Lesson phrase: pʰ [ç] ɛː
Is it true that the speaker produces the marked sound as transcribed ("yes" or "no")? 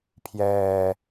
no